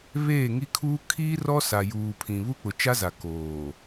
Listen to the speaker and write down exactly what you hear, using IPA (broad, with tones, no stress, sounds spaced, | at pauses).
β eː˦˨ ŋ i˦ kʰ uː˦ kʰ iː˦ r ɔ˦ s a˨ j uː˨ pʰ ĩ˨ β u˦ k͡p ʊ˨ t͡ʃ a˦ z a˨ k oː˨